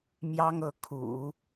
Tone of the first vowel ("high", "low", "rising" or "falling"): high